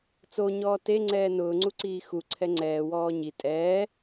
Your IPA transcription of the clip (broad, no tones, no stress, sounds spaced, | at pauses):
t͡s o ɲ ɔː t e ŋ͡ǀ ɛː n ʊː ŋ͡ǀ u ǀ iː x u ǀʰ ɛ ŋ͡ǀ ɛː w ɔː ɲ i tʼ ɛː